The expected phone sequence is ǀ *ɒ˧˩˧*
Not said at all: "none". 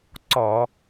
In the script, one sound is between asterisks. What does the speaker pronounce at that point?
ɒ˧˩˧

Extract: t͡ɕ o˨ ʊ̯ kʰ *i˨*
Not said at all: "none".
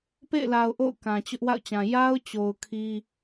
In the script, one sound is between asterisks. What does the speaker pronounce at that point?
i˦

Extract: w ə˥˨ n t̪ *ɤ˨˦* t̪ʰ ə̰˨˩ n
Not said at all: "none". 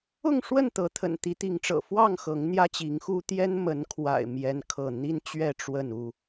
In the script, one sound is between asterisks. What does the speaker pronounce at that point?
ɤ˨˦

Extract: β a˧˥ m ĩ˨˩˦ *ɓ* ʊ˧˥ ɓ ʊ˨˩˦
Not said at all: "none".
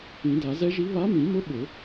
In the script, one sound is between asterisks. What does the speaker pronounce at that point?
m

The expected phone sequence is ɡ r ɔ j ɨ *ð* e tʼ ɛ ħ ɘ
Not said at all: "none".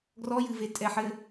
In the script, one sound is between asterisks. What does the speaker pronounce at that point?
v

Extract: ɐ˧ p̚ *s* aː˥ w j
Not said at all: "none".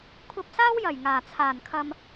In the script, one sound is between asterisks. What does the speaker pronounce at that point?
s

